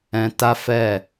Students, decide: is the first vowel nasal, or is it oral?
nasal